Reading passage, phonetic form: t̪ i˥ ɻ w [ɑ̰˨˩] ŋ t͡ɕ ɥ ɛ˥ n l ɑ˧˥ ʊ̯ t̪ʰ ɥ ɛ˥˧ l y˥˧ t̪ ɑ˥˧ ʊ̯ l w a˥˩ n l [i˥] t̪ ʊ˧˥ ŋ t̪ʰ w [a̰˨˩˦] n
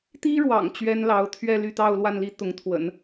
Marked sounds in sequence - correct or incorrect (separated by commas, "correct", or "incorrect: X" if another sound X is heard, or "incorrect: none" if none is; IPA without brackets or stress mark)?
correct, correct, incorrect: ə̰˨˩˦